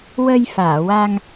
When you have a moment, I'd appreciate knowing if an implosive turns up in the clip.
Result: no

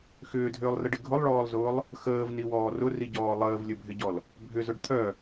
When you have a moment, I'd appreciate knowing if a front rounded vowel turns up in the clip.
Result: yes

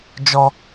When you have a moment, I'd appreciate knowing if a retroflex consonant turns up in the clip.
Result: no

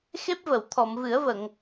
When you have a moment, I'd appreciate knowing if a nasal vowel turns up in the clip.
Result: no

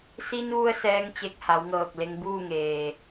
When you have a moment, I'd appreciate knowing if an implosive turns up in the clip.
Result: no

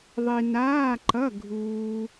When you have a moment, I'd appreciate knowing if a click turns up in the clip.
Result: yes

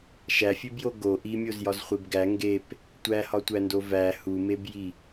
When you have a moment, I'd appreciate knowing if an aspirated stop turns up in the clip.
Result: no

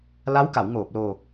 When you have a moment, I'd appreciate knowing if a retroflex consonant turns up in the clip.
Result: no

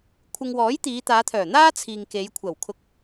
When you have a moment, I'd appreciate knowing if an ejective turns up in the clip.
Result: no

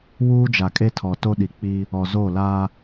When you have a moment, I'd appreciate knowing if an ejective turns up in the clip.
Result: yes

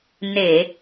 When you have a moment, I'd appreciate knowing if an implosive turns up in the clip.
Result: no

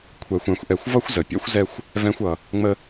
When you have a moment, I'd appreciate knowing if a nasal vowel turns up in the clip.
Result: yes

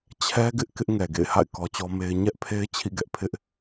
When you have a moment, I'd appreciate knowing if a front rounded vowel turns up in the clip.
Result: no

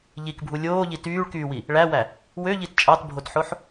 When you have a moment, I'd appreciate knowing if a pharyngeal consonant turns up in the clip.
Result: yes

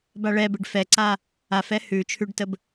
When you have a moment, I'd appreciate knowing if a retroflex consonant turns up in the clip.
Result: yes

